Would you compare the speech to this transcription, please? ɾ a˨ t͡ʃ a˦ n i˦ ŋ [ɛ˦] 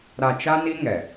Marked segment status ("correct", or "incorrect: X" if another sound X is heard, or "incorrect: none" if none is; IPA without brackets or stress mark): incorrect: ɛ˨